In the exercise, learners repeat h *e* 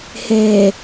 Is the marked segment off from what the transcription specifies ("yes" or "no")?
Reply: no